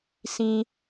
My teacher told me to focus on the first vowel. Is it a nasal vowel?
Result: yes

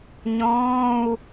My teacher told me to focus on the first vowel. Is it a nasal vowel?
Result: yes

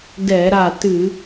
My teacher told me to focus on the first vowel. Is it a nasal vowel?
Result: no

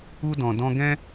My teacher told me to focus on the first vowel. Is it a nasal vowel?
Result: no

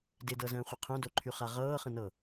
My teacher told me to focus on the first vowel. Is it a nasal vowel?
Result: no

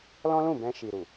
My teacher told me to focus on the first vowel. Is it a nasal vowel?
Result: yes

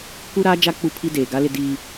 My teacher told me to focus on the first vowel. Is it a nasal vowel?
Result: no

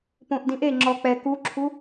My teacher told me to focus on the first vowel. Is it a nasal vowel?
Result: yes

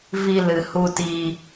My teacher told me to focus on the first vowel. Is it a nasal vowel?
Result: no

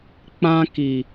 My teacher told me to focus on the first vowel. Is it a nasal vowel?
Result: yes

